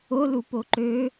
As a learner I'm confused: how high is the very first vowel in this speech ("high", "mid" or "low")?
mid